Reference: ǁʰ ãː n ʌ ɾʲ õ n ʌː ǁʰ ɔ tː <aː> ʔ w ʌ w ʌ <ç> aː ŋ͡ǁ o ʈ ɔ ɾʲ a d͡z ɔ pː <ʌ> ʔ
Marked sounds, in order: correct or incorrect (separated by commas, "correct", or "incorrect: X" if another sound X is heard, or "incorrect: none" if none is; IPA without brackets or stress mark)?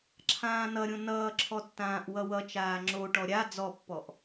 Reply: incorrect: ãː, incorrect: t͡ʃ, incorrect: ɔ